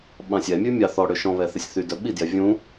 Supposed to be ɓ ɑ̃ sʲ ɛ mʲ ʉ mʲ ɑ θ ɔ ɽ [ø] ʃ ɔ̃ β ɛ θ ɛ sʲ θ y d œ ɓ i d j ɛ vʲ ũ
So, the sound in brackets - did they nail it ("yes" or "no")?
yes